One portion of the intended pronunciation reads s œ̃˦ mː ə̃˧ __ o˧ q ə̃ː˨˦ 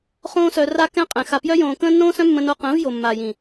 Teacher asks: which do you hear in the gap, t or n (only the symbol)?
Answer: n